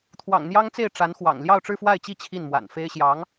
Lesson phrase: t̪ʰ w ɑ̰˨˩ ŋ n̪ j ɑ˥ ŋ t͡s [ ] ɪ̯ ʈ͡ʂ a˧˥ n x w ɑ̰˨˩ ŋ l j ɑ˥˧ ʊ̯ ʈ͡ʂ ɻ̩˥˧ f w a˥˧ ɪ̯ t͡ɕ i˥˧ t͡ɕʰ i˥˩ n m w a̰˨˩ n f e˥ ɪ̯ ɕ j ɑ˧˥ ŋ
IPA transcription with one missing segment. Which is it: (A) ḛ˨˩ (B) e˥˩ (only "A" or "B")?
B